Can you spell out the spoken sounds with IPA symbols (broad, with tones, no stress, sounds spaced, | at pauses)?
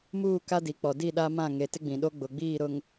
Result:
m uː˦˨ k a˦ d i˨ k͡p ɔ˨ d i˦˨ ɗ a˦ m ã˦˨ ŋ e˨ t ɪ˦ ɡ͡b ĩ˨ ɗ o˦ ɡ͡b ʊ˨ ɡ͡b iː˦˨ ɾ ʊ˨ ŋ